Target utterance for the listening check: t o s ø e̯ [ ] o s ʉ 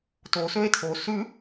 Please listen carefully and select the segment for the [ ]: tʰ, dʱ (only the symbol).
tʰ